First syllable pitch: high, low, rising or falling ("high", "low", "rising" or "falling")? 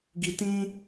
low